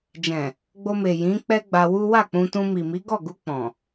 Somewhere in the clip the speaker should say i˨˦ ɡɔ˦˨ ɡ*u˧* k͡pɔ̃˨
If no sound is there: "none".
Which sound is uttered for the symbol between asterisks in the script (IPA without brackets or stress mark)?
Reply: u˧